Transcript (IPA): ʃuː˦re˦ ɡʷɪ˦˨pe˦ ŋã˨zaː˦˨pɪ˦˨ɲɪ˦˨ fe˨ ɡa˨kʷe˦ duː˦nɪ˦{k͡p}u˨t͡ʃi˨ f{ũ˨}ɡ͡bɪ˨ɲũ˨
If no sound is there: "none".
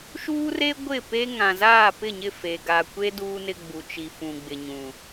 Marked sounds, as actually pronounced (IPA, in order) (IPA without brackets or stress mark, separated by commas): ɡ͡b, ũ˨